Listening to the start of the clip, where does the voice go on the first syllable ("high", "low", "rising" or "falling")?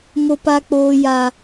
high